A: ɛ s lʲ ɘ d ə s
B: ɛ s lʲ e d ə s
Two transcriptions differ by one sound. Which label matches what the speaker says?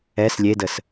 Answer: B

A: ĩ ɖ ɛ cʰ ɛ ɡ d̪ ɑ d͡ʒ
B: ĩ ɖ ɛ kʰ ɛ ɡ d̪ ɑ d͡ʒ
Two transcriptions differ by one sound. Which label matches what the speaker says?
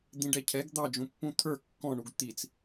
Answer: A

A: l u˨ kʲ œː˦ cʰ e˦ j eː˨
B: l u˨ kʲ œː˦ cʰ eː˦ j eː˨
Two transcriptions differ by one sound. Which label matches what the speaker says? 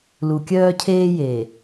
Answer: B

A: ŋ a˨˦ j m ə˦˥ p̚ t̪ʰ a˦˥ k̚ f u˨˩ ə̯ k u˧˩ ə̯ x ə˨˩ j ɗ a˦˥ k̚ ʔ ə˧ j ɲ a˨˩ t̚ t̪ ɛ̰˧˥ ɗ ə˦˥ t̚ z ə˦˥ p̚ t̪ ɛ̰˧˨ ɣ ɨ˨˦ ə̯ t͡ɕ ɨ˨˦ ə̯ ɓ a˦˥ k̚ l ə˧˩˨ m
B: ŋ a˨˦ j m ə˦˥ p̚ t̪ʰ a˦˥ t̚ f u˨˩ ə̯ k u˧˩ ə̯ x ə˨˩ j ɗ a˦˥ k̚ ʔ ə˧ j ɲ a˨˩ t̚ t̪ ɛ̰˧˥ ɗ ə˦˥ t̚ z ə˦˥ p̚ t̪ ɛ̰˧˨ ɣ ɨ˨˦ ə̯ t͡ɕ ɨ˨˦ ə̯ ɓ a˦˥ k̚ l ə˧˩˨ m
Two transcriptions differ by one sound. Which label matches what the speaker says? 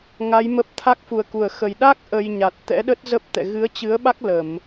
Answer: A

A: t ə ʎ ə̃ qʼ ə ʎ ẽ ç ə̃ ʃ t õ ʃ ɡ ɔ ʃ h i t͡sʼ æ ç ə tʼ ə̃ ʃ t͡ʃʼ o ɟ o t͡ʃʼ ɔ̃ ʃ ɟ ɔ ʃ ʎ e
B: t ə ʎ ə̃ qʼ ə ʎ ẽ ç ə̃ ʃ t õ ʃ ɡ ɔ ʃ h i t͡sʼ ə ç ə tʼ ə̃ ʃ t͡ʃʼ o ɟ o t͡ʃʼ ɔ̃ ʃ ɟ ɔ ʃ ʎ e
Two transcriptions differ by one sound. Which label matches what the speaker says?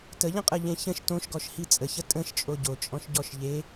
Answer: B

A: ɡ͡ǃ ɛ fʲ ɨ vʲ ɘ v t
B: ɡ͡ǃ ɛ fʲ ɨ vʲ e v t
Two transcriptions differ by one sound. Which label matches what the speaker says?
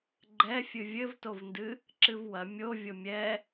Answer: A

